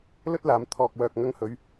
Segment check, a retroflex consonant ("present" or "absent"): absent